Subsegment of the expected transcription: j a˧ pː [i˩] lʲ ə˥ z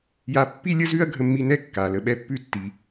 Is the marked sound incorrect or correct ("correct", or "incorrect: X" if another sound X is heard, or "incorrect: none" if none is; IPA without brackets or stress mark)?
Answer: incorrect: i˥